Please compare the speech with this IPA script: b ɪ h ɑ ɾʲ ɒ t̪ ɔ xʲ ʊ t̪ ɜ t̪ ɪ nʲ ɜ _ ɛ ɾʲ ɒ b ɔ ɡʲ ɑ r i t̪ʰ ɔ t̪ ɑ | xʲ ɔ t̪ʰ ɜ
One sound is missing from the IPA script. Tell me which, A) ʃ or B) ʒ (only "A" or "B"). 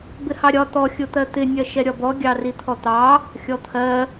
A